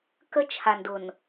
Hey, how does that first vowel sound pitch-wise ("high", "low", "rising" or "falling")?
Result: high